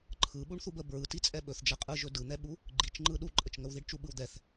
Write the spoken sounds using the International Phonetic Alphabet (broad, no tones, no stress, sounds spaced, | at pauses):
ǃʰ ɯ ɓ u ɳ θ u b ə b ɹ ɯ t i t͡sʼ ɛ ɓ ɵ θ d͡ʒ ɛ qʼ ɯ ʒ ɵ d ɯ n̪ ɛ ɓ u | ɡ͡ǃ i t͡ʃ ŋ͡ǃ ɯ ɗ u ǃʼ ə t͡ʃ ŋ ə w ð i ɖ t͡ʃ u ɓ ɯ w d̪ ɛ θ